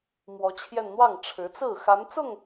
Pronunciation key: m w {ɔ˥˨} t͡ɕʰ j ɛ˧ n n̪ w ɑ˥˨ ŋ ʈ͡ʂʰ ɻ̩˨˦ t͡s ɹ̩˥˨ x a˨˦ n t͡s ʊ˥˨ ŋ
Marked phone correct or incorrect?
incorrect